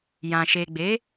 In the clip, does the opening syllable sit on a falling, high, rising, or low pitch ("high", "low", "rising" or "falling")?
low